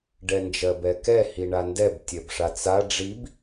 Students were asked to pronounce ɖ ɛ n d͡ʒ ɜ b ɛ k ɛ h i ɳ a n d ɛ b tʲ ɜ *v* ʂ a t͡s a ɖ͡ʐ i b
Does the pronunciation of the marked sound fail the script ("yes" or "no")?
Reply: yes